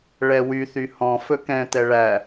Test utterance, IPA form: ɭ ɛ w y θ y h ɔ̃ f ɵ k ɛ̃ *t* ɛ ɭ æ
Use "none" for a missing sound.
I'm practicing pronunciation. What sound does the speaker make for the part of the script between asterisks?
t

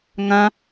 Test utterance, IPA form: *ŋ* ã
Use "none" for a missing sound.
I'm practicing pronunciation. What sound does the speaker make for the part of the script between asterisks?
ŋ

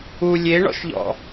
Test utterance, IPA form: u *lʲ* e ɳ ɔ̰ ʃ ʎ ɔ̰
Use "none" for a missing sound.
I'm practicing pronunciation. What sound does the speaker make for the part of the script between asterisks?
lʲ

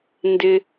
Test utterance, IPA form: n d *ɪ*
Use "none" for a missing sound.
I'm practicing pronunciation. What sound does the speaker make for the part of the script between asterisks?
ɪ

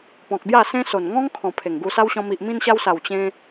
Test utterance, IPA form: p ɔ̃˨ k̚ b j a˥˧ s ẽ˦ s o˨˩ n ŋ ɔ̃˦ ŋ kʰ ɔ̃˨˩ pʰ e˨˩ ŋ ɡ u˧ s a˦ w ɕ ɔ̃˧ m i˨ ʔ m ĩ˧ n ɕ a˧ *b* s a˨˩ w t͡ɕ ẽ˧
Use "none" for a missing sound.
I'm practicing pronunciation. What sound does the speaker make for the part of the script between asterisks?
w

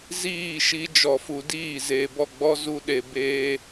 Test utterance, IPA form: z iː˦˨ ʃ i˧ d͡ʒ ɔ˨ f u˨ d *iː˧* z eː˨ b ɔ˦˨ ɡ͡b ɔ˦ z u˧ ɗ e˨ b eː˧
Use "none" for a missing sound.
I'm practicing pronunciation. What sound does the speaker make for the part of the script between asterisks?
iː˦˨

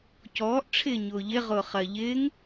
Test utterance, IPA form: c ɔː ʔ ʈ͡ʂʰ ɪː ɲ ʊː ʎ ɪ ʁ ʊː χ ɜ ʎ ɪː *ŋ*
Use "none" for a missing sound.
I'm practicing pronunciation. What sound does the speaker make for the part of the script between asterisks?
ŋ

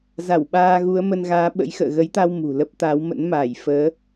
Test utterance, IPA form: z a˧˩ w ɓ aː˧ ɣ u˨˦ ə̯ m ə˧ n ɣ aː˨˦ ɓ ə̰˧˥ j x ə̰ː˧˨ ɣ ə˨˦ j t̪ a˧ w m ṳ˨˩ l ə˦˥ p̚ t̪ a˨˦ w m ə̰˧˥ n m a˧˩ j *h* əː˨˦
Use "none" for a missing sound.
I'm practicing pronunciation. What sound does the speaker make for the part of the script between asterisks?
f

